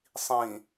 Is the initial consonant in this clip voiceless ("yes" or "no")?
yes